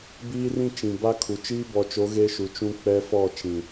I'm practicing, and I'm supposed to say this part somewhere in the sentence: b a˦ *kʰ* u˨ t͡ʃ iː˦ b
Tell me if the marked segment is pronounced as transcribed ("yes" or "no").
yes